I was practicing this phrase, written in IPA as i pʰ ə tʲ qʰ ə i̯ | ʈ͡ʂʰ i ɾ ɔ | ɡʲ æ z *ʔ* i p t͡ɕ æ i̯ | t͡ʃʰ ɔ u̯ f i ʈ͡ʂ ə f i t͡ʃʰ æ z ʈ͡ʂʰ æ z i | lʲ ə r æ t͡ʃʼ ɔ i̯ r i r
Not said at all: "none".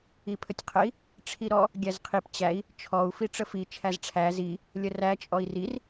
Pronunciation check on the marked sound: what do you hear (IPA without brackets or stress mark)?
qʰ